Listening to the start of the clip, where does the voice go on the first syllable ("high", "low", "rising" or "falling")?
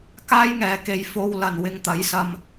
high